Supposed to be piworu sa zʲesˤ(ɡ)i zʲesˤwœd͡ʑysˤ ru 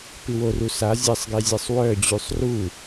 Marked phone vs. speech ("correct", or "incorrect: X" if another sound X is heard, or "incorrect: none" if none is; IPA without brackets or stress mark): correct